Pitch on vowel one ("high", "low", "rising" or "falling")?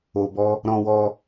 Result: low